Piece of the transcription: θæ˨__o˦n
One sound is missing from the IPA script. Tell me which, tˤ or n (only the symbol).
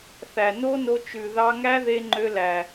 n